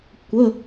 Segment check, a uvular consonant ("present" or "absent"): absent